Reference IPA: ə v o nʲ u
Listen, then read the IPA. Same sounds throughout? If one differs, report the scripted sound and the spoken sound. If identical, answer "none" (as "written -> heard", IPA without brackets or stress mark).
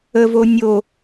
u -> o